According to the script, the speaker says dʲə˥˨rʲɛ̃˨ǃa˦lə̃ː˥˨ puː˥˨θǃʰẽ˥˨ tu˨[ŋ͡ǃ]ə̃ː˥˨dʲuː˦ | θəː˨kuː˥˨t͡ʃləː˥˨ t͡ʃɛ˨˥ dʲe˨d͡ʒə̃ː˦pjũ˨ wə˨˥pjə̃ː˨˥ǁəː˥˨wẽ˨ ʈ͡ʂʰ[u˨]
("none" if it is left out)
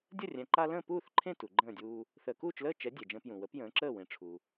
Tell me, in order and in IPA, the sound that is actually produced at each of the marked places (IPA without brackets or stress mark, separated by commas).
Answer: ɡ͡ǃ, u˨